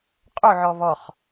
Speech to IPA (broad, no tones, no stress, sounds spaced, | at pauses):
qʼ o ʕ ɔ β ɔ χ